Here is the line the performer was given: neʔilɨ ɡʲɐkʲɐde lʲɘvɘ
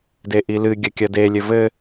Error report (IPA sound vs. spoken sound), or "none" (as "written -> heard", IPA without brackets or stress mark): n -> d